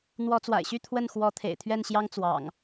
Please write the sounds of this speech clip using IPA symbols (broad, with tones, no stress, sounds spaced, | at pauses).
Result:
n̪ w ɔ˨˦ t͡s w a̰˨˩ ɪ̯ ɕ y˥˨ t̪ʰ w ə˥˨ n x w ɔ˨˦ t̪ʰ ḛ˨˩ ɪ̯ t̪ʰ ɥ ɛ˥˨ n ɕ j ɑ˦ ŋ t͡s w ɑ̰˨˩ ŋ